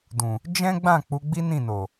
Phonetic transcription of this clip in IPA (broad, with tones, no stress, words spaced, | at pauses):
dũ˨ | d͡ʒɛ̃˦ɡ͡bã˦˨ k͡pu˨˦ɡ͡bi˦nĩ˦˨no˨